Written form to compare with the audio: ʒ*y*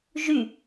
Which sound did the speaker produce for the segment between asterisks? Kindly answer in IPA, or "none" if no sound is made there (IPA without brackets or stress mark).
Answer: y